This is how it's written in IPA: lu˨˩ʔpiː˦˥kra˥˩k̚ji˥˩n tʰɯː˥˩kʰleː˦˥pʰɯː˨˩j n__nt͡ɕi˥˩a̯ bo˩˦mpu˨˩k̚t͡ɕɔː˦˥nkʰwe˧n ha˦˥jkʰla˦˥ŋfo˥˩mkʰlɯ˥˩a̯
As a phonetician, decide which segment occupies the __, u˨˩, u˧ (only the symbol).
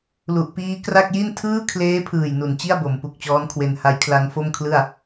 u˨˩